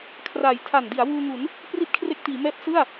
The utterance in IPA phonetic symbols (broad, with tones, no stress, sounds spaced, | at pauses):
kʰ r aː˨˩ j tʰ a˨˩ n d i˩˦ a̯ w uː˧ ŋ u˩˦ n | p r i˥˩ t̚ kʰ r e˦˥ k̚ t iː˩˦ m ɛː˦˥ p̚ s ɯ˥˩ a̯